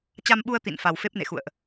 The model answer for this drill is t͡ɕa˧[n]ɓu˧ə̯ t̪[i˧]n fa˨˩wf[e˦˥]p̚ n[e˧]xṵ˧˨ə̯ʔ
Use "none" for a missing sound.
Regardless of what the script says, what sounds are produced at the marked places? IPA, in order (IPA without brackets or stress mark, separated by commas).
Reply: m, ḭ˧˨, e˦˥, ḛ˧˨